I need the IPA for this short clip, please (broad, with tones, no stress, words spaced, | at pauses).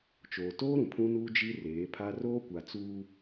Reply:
t͡ʃoː˨toː˦ ɾũ˨pʰũ˦nuː˦ d͡ʒi˦reː˨˦pʰa˦ roː˦kʷa˨ t͡suː˦